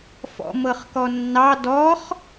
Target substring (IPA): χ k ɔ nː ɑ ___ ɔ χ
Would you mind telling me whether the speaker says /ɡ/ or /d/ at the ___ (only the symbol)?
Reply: d